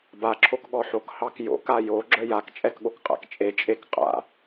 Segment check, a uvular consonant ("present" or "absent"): present